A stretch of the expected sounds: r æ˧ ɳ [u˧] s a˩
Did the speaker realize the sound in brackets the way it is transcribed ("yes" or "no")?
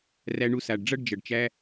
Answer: yes